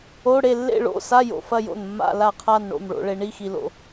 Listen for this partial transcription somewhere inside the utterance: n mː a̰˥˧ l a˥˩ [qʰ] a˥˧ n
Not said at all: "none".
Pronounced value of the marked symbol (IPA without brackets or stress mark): qʰ